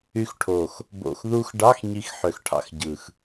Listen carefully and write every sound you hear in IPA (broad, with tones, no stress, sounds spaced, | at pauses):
y˧ x ʈʰ o˨˩ x | b o̰˨˩ x ð u˧ x ɖ ɑ˧˥˧ x ɲ i˧ x ħ ø˨˩ x ʈʰ ɑ̰˧ x ɟ ɯ˨˩ x